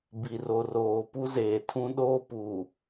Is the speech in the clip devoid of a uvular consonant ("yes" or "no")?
yes